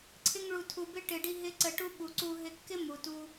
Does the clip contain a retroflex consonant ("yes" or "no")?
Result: yes